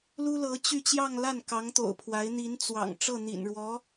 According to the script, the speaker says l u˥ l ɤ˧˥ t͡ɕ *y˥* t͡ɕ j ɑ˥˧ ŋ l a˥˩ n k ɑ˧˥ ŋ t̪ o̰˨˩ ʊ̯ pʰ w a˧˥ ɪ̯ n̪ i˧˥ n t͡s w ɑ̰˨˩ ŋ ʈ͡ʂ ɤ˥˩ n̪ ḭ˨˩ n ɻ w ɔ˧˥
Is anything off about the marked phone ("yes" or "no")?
yes